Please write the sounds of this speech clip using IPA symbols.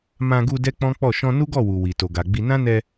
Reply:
mã˧ɡu˧ dɛ˦k͡pɔ̃˦k͡pɔ˦˨ ʃɔ̃˧nu˦ɡɔ˦˨wu˨ wi˨ to˨ɡa˨ɡ͡bi˧ nã˦nɛ˧

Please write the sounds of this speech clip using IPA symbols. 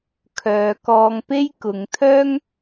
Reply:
kʰœː˨˧kɔː˧ŋpe˥jkʊ˨˧ŋ t̪ʰœː˥ŋ

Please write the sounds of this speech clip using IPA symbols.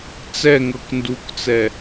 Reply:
t͡sɛŋɤk ndukt͡sɛ

